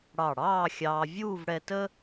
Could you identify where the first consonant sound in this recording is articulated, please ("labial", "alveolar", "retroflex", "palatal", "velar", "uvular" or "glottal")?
retroflex